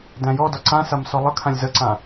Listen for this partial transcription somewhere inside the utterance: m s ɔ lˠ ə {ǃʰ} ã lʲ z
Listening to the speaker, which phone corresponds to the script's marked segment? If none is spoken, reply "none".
kʰ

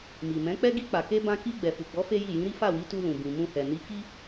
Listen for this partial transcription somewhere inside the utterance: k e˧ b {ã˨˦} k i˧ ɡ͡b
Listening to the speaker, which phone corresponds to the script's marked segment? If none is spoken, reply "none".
ã˧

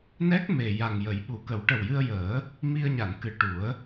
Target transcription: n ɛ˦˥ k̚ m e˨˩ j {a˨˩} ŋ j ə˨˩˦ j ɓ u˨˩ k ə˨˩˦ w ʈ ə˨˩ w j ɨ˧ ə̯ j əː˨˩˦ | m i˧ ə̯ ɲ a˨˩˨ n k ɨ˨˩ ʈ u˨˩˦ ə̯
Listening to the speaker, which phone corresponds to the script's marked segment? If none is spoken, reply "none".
a˨˩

